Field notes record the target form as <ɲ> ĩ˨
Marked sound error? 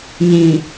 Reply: no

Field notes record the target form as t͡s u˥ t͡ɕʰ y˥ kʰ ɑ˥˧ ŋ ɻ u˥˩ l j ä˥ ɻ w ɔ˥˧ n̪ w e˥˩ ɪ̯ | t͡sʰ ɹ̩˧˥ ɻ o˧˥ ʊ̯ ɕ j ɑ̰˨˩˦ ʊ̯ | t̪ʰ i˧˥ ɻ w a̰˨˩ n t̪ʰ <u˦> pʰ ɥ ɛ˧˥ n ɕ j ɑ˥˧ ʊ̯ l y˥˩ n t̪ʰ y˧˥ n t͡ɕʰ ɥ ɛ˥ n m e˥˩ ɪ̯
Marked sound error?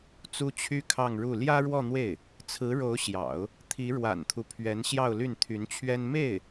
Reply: no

